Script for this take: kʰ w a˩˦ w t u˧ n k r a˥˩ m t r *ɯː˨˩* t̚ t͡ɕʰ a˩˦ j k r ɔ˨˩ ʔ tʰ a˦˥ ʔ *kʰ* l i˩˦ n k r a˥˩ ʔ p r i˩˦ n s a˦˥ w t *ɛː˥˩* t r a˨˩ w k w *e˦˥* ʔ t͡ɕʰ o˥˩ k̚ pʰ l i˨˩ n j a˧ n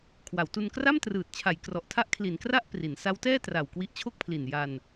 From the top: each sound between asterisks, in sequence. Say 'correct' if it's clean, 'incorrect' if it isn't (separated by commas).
correct, correct, correct, incorrect